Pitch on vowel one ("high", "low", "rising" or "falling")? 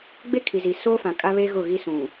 high